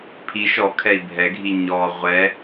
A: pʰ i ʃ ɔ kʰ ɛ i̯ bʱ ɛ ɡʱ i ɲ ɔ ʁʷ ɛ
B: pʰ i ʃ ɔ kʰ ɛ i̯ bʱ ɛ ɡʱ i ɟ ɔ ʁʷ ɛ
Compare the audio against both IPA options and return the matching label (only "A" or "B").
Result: A